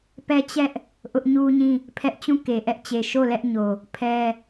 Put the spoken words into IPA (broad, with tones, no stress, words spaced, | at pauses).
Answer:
pɛ˦t͡ɕɛ˦ʔ | ʔʊ˦ʔ ɲu˦ɲĩ˦˨ | pʰɛ˦ʔ t͡ɕũ˦˨ke˨ʔɛ˦ʔt͡ɕe˨ ʃo˦˨lɛ˦ʔɲo˨ | pʰɛ˦